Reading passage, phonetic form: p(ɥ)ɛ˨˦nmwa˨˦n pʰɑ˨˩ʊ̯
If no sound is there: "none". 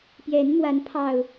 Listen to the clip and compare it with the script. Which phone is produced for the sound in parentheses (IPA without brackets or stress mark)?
j